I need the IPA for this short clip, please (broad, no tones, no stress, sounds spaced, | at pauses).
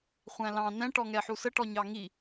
χʷ æ̃ l ɑ̃ n ɛ̃ ʈ ɔ ŋ ɛ ħ u s ə ʈ ɔ ɲ ɑ ŋ i